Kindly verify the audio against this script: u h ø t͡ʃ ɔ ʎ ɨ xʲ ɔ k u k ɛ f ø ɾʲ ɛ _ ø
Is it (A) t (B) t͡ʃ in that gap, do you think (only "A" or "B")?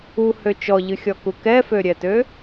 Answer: A